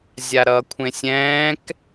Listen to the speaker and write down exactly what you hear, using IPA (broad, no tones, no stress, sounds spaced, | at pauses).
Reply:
zʲ a ɾ ʌː kʷʰ ẽ sʲ ɛ̃ː k